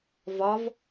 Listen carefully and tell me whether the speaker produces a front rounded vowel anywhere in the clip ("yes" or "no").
no